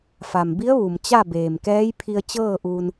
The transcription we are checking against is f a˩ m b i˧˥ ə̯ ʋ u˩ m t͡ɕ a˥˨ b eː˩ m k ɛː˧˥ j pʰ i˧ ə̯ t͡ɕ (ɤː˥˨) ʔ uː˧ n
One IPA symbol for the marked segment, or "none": ɤː˥˨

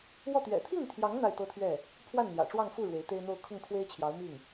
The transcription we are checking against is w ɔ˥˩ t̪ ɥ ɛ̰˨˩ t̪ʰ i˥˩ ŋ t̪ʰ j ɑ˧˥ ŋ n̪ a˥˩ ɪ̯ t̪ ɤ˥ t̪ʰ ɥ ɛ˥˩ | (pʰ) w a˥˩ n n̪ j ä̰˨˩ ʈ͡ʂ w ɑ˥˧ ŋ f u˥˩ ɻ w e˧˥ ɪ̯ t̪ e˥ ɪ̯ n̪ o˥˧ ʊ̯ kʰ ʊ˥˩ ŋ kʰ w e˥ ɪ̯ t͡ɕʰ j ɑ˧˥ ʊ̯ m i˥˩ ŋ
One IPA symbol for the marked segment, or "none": pʰ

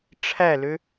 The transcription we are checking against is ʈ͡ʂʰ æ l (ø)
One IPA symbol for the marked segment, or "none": ø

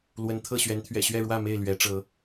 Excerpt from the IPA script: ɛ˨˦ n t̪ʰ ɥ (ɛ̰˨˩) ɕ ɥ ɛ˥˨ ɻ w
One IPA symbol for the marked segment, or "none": ɛ̰˨˩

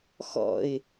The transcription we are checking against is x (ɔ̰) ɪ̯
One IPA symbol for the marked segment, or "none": ɔ̰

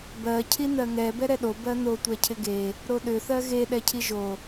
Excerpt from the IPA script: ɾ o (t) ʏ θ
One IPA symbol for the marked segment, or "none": ɗ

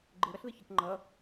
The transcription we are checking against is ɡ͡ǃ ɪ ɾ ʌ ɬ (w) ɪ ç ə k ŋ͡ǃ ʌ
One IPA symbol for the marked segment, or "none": ð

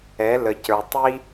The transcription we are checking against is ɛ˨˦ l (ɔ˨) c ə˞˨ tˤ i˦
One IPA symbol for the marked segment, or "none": ə˨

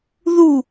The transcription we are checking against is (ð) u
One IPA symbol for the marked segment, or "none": ð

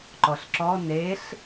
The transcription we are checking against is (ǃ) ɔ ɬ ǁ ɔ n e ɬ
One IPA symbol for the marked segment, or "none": ǃ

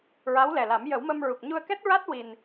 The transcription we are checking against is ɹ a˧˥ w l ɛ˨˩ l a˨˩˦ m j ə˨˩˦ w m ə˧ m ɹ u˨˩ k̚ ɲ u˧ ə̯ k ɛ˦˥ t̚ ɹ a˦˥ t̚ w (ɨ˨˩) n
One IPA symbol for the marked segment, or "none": i˨˩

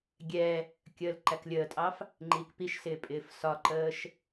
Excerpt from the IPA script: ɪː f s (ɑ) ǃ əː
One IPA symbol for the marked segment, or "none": ɒ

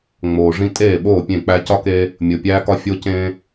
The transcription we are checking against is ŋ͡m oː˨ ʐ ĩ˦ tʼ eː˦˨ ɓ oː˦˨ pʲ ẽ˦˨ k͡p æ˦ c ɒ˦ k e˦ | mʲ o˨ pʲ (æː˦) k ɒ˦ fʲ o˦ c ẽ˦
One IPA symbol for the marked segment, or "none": æː˦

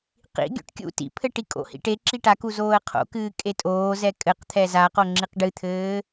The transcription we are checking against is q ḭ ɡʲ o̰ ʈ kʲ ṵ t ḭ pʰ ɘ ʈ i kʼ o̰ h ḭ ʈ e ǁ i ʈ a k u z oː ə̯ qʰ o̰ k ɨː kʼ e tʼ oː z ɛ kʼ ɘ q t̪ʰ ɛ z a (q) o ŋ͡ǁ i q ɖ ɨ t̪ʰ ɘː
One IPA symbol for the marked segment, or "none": q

